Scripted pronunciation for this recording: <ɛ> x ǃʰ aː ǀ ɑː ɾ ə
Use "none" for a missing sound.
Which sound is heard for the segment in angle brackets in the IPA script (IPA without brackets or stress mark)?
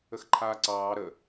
ə